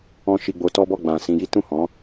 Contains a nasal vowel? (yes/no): yes